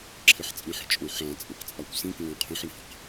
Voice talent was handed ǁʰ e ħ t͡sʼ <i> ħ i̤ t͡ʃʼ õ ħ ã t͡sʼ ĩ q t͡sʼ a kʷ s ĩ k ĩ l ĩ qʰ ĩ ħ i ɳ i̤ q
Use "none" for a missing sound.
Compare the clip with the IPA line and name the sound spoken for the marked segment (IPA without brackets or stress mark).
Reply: ĩ